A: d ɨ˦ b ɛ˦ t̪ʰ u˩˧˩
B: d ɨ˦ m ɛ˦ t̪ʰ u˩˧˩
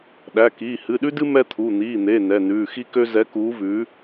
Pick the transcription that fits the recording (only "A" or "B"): B